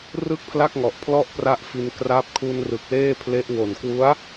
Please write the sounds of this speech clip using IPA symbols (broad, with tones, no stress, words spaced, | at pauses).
rɯ˥˩k̚pʰla˥˩k̚ŋɔ˨˩ʔ pʰlɔ˥˩ʔpra˦˥ʔfi˧n kra˦˥p̚ kʰu˧nrɯ˨˩k̚ leː˥˩pʰle˦˥ʔ wo˨˩nkwu˦˥a̯